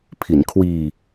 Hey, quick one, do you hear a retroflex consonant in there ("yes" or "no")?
no